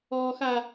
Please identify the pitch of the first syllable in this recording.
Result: low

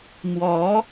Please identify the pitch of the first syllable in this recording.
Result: rising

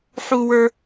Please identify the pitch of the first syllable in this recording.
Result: high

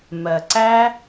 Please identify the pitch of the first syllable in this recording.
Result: low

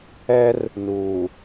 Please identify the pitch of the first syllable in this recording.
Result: high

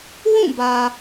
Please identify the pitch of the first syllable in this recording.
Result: falling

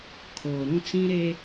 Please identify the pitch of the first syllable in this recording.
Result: low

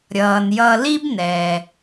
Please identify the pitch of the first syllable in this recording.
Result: low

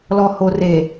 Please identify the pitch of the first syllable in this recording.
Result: low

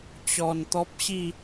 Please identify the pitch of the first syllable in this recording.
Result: low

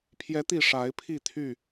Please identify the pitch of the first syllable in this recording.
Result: rising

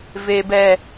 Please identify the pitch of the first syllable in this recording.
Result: low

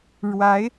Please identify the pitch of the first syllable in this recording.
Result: rising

